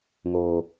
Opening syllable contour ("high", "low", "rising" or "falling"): low